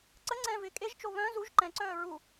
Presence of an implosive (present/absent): absent